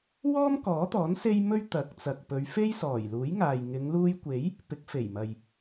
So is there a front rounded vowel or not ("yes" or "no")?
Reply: no